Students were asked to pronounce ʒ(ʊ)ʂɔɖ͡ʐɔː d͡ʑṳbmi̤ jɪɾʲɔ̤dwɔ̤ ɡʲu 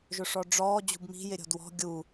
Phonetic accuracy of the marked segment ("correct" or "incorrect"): correct